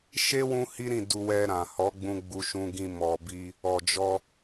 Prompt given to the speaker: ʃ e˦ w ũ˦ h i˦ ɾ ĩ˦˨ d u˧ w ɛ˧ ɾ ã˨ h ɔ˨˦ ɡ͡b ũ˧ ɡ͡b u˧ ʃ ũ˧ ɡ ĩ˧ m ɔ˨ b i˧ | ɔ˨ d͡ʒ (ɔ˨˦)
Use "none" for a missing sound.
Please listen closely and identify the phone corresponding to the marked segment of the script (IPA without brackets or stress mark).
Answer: ɔ˧